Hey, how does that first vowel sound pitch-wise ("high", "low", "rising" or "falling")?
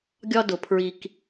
high